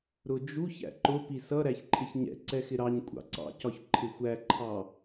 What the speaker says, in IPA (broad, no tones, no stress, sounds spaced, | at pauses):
ɾ ʊ d͡ʒ u ç æ̰ ǃ ʊ p i s ʌ ɾ æ ç ǃʰ ɪ ç ɲ ɛ̰ ǀ ɛ x ɪ ɾ ɑ ɲ kʷʼ ɑ̰ ǀ ɑ̰ c ɒ ç ǃʰ ɪ xʷ æ ǃʰ ɑ